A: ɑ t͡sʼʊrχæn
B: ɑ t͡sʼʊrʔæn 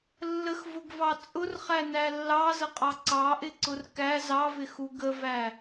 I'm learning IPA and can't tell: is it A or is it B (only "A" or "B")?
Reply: A